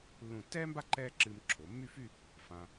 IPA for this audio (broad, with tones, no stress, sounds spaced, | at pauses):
lː ũ˧˩ tː ɛː˥ m b a˥ ǃ ɛː˥ ǁ ɨː˧ m ǁʰ o˩˧ mː y˥˧ f y˥˧ | f ã˧